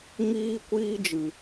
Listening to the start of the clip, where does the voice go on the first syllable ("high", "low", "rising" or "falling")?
high